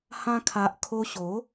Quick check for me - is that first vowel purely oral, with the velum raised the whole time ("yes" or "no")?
no